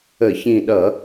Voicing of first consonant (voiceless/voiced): voiceless